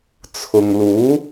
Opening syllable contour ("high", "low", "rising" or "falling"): low